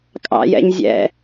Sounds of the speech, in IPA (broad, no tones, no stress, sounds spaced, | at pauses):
kʼ ɑ̰ j ɛ̰ ɲ zʲ ɛ̰